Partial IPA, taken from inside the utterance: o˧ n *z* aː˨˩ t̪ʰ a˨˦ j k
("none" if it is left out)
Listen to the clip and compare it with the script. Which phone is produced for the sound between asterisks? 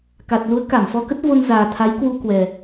z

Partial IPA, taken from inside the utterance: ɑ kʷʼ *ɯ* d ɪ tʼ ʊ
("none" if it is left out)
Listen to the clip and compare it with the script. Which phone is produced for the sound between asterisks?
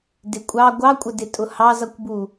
ə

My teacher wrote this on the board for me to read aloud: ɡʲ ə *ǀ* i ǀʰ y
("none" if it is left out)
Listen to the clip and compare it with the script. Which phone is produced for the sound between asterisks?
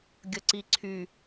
ǀ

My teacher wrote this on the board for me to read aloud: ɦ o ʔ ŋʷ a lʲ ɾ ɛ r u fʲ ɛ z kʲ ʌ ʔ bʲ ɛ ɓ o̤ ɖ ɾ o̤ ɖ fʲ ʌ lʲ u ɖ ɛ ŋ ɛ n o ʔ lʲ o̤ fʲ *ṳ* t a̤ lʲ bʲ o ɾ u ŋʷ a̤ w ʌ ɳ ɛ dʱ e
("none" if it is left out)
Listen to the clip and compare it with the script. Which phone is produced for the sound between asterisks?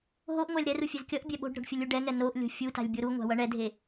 u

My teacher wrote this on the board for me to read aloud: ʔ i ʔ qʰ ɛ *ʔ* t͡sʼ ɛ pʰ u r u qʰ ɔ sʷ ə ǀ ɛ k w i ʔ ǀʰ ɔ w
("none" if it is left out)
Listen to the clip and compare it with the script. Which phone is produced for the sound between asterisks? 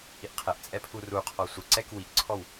ʔ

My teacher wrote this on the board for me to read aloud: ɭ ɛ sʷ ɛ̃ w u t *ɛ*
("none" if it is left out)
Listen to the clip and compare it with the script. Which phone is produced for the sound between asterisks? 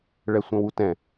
ɛ̃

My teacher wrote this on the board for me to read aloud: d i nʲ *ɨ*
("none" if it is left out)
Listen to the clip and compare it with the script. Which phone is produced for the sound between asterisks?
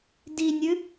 ɨ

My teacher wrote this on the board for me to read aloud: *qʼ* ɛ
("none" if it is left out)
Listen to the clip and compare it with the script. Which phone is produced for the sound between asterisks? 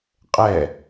qʼ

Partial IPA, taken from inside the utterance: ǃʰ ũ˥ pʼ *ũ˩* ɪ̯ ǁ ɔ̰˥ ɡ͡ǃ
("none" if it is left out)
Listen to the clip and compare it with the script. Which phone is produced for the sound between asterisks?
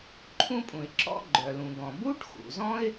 ũ˩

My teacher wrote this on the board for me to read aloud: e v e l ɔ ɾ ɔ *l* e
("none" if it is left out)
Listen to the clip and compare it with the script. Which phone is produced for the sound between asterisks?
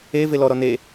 n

